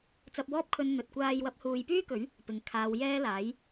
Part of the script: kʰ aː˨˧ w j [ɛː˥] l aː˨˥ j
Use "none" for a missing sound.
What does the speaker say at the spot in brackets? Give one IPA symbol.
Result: ɛː˥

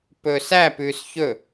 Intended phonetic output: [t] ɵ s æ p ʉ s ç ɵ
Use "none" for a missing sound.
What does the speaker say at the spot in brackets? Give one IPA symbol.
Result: p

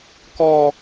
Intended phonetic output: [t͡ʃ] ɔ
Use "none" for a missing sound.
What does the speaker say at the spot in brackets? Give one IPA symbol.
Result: k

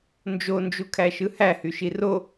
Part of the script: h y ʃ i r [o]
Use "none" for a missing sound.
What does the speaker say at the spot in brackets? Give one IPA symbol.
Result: o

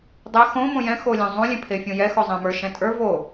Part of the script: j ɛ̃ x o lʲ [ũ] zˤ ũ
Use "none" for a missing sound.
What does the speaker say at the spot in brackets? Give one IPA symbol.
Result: ũ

